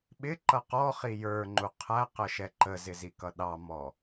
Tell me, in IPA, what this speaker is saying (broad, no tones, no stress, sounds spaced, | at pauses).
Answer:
ɓ ɪ ǃ ʌ q ɔ χ i j ə˞ ŋ͡ǃ u qʰ æ q ə ʃ ɛ ǃ ə z ɪ z i k ʌ ɗ ɑ m ɔ